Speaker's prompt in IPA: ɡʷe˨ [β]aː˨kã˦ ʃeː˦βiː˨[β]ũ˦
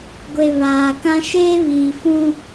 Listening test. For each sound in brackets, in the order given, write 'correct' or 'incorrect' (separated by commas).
correct, incorrect